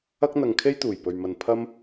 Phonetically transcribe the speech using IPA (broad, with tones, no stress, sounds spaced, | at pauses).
ɐ˥ k̚ n̪ ɐ˧ ŋ kʰ e˥ j t̪ uː˨˩ j p ɵ˨ ɥ m ɐ˨ n pʰ ɐ˥ m